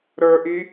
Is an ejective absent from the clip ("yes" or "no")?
yes